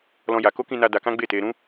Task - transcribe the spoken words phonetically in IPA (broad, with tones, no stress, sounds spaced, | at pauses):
l ɔ̃˦ j a˧ k o˦ k ĩ˧ n a˧ d a˧ k ã˦ ɡ͡b e˦˨ t e˧ ɾ ũ˦